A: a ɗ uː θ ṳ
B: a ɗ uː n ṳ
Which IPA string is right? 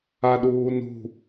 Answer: B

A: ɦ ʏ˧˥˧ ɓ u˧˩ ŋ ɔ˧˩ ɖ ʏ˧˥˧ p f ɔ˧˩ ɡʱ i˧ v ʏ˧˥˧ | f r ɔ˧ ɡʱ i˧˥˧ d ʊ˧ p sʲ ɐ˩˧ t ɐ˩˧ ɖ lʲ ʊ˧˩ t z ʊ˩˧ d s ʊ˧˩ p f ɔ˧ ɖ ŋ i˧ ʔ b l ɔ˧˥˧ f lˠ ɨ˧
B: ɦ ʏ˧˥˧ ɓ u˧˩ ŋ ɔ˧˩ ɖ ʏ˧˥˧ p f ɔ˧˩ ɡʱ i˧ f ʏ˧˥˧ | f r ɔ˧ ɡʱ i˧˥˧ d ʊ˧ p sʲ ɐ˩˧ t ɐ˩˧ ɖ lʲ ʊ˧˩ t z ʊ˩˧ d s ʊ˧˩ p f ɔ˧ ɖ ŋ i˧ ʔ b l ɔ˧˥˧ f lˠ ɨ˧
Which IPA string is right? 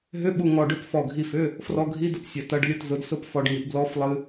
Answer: B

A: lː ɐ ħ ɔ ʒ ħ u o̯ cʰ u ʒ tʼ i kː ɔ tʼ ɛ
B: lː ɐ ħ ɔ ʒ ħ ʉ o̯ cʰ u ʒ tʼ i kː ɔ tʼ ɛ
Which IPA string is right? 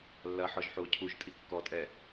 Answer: A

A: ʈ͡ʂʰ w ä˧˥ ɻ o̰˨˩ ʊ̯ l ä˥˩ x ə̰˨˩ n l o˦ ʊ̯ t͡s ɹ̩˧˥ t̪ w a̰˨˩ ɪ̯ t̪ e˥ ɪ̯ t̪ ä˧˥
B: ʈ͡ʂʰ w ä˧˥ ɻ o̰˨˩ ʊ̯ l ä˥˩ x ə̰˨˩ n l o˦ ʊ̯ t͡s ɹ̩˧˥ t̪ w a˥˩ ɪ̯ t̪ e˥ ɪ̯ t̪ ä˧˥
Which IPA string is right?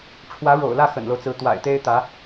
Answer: A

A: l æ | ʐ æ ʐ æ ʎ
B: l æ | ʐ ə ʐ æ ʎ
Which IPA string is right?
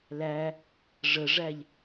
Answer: B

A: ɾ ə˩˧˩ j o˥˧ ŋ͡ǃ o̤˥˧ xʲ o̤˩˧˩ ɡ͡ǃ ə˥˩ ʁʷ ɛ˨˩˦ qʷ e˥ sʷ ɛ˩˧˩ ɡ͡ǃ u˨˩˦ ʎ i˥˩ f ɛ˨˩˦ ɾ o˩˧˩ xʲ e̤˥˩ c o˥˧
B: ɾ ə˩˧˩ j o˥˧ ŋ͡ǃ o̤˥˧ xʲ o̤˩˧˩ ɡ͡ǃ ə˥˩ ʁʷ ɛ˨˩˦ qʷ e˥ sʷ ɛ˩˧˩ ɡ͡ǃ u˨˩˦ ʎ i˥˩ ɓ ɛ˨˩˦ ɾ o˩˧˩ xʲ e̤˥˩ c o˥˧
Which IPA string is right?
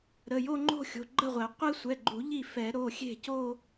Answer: A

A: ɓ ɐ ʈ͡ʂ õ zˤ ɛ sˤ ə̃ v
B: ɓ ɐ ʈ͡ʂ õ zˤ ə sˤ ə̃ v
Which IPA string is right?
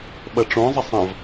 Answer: B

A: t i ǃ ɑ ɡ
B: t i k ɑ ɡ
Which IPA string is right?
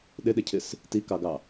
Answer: B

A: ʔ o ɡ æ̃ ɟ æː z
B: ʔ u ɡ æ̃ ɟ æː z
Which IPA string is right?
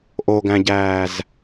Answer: A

